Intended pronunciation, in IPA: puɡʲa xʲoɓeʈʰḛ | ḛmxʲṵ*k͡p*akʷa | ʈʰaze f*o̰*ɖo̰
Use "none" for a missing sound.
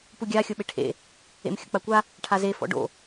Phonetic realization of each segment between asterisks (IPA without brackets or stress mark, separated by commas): k͡p, ɔ̰